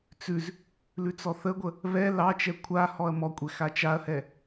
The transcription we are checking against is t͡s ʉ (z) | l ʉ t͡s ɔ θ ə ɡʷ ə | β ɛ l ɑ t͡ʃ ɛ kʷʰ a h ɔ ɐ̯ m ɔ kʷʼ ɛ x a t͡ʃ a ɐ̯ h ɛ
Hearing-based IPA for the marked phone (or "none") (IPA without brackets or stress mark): z